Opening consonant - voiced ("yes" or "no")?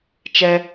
no